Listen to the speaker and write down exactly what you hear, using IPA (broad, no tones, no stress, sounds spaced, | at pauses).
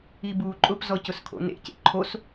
i b uː ǃʼ ʊ p z ɔ c ʊ s kʰ o̰ n ḛ c ḛ ǃʰ o s